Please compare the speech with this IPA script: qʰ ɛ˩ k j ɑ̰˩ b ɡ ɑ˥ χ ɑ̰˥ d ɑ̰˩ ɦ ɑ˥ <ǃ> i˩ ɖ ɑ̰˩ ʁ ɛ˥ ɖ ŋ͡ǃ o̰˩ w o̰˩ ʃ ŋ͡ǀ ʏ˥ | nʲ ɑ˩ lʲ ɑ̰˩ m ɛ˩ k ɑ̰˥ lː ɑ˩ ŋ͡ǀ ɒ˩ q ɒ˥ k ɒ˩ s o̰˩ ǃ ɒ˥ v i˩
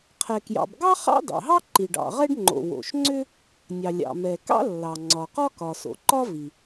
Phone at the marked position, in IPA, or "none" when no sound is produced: ǃ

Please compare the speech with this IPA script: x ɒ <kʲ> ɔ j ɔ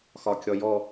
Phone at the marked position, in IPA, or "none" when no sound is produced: kʲ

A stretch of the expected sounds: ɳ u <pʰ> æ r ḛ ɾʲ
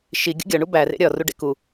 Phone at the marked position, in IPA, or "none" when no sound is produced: b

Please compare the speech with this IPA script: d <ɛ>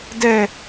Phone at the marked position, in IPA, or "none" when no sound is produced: ɛ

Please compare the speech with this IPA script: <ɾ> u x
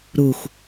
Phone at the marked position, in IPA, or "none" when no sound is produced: ɾ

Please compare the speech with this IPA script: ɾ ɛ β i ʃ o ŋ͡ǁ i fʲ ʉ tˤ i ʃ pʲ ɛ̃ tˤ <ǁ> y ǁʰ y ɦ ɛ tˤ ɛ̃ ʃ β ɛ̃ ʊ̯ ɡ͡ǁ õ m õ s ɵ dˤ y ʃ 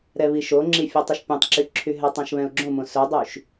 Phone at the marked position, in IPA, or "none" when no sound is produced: ǁ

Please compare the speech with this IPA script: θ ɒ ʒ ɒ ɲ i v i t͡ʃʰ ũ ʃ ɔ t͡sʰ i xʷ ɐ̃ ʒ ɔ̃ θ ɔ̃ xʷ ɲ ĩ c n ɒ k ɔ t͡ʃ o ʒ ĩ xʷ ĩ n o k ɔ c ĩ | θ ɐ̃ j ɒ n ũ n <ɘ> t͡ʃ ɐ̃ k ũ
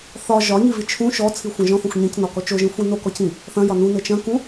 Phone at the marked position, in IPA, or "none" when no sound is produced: ɘ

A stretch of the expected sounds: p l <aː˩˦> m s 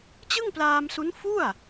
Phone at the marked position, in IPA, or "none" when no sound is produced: aː˧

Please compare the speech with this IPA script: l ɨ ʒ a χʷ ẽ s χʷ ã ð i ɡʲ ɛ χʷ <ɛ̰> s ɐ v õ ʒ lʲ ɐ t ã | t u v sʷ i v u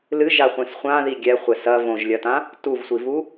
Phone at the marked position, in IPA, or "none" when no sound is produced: ɛ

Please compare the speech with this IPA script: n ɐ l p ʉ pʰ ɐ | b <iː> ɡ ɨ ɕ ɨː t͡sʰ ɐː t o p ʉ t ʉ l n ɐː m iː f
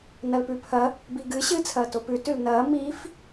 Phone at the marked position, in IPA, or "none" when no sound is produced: i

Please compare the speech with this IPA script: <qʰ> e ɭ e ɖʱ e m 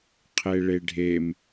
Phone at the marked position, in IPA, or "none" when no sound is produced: qʰ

